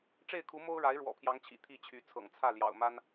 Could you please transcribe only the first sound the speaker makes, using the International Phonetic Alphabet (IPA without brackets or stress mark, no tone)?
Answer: ʈ͡ʂ